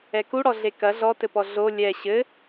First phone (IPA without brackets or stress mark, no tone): ɛ